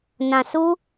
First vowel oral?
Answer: no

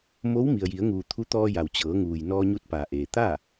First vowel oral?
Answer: yes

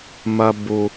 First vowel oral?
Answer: yes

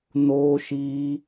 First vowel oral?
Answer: yes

